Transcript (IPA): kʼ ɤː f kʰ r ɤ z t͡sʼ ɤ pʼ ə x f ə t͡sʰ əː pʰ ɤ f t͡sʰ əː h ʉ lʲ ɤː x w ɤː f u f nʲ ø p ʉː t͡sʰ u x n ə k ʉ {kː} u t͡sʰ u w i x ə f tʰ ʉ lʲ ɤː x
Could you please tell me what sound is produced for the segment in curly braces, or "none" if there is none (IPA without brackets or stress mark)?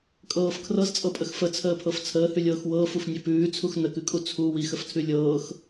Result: kʼ